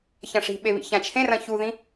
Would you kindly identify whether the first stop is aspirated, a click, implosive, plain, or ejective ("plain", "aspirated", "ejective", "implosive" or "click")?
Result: implosive